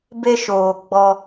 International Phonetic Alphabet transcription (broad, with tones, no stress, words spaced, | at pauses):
be˦ʃoː˨ɡ͡bɔ˦